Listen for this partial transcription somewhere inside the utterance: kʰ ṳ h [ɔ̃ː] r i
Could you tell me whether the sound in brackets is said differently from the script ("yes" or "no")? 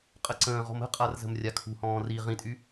no